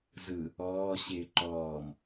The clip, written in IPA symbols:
z ɯ | ɔː ɕ ɪː ǃ ɔː m

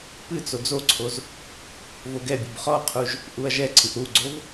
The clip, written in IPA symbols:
p ɨ t͡s o d͡z o ǀʰ o z | v o ɡ ɛ bʲ u b χ ɔ qʰ u ʒ | ʔ u ɐ̯ ʒ ɛ ǀʰ ɨ ʔ ɾ u ɡ͡ǀ o v

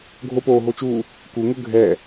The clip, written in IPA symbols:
ɡʱ o p oː ɦ o t͡ʃ uː | k u ŋ ʊ ɡʱ ɛ

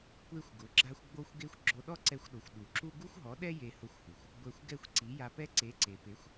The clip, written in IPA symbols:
kʷ e˦ xʷ ɡ ʊ˨˦ ɡ͡ǁ a˦ xʷ ɡ͡b o˦ xʷ ɡ e˦ xʷ ɡ͡ǁ o˧ ɗ ɔ˦ ǀ ɛ˧ xʷ ɗ o˨ xʷ ɗ u˨ ǁ u˦ ɡ u˦ xʷ ɦ ɔ˨˦ ɗ ɛ˦ j e˧ h ʊ˧ xʷ h u˨ xʷ | ɡʷ ɛ˧ xʷ ɡ ɛ˦˨ xʷ ǀ i˨˦ j a˧ p ɛ˦ ǀ e˨˦ ǀ e˨ p e˨˦ xʷ

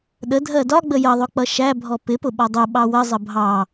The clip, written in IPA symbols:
ɗ ə dʱ ɜ d ɒ ɡ͡b ə j ʌ ðˤ ʊ k͡p ʌ ʃ æ bʱ ɔ p ɪ p ʊ ɓ ɒ dˤ ʊ ɓ ɑ w ə zˤ ə bʱ ɑ

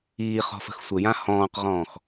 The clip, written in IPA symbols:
iː χ ɔ̤ f ə̤ x sʷ ɘ j ã h ɔ̃ː q ʁ ɔ̃ː x

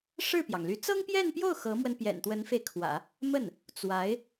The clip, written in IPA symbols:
ʂ ɻ̩˥˩ p j ɑ˩ ŋ l y˧˥ t͡s ɤ˥ ŋ p j ɛ˥˧ n p j o˥˩ ʊ̯ x ɤ˧˥ m w ə˧ n p j ɛ̰˨˩ n t̪ w ə˧˥ n f e˧ ɪ̯ kʰ w ä̰˨˩˦ | m ə˥˩ n | t͡s w a˧˥ ɪ̯

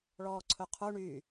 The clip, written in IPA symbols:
ɭ ɔː ǀʰ ɵ qʰ u ɳ y

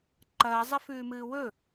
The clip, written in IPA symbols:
ǃ ɐː zˤ ɐ f ʉː m ɨː w ɵ

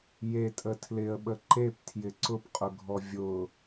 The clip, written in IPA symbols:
j e tʼ ə tʰ l ɪ ə̯ ɓ ə ǃ e p tʰ j ɪ ǀ ʊ p qʼ ʊ ɡʱ ɔ vʲ ʊ

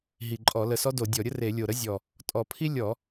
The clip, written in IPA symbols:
ɦ i˨˩ ǃʼ ɔ˧˩˧ l ə˨˩ s ɔ˥ d o˧˩˧ dʲ ɔ˧˩˧ ɾʲ ə˥ r e˧˩˧ lʲ o˨˩ ɾ ə˥ zʲ ɔ˨˩ | tʼ ɔ˧˩˧ pʰ i˥ lʲ ɔ˧˩˧

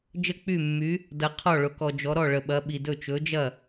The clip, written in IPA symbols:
d͡ʒ ə˥˩ k͡p y˥˩ mː y˨˥ | d ɐ˨ qʰ ɔ˥˩ ɭ ʊ˨˥ k ɔ˨ d͡ʒ ɔ˨˥ ɾ ɔ˥˩ ɭ ə˨ ɓ ɐ˨˥ ɓ i˨ d ɵ˥˩ t͡ʃ ɵ˨˥ d͡ʒ ɐ˥˩

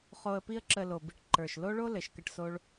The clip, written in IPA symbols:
χ o˧ ə̯ p i˦ ə̯ ǁ ə˧ l o˨ b i˧ ʈ ǃ ə˞˨ ʃ l o˦ ɭ o˦ l ɘ˨ ʃ k ə˦˨ ʈ s o˦ ɭ

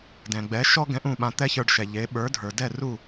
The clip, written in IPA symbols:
d ɛ̃˩ ɡ͡b ɛ˩˥ ʃ ɔ˥ ɡ ɛ̃˧ ʔ ũ˥˩ ɓ ã˧ t̪ ɛ˥ ç ə˞˧ ɖ ʃ ɛ˩ ʎ e˩˥ ɓ ə˞˩˥ dʱ ə˞˩ d ɛ˥˩ r u˥˩

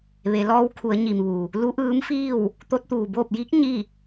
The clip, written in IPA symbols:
ʋ e˩˧ l ɔː˧˥ w kʰ u˩˧ ə̯ ɲ i˩ m ʋ u˩ | l u˧˥ ʔ ɯː˧˥ m f iː˥˨ w | t̪ o˧˥ t̚ t̪ uː˩ b oː˥˨ p̚ j i˧˥ k̚ ɲ i˥˨

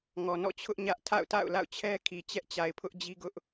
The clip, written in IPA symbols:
ŋ ɔ˨ n ɔ̰˦˨ t͡ɕʰ ʊ˦ ʔ ɲ ä˦ ʔ tʰ a̰˦˨ ʊ̯ t a̰˦˨ ʊ̯ l a̰˦˨ ʊ̯ t͡ɕʰ ɛ˦ kʰ i˨ t͡ɕ ɛ˦ ʔ t͡ɕ a˨ ɪ̯ pʰ ʊ˦ ʔ d͡ʑ i˦ ɡ ʊ˦ ʔ

